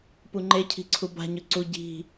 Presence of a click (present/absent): present